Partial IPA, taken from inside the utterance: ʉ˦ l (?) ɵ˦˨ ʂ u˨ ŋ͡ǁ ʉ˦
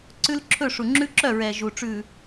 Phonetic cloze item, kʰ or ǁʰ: ǁʰ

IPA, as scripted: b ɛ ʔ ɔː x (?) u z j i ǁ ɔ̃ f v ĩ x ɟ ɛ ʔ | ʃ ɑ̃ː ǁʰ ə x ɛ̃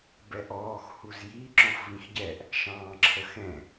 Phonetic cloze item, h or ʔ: h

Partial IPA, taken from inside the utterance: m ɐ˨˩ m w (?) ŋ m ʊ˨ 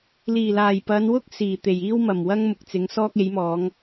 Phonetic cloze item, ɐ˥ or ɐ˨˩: ɐ˥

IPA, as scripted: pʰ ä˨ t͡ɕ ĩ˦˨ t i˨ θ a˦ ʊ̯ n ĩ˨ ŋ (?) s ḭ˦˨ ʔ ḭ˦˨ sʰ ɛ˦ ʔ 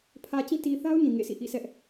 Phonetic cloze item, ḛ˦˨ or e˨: ḛ˦˨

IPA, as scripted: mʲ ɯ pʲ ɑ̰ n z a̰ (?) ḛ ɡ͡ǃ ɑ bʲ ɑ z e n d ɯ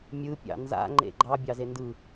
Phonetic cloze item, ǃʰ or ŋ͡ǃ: ŋ͡ǃ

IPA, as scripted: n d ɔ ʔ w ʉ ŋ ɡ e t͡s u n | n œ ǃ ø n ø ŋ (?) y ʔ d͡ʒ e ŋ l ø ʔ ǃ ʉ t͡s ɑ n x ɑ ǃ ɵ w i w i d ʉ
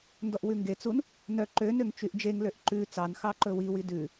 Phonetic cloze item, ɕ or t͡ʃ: t͡ʃ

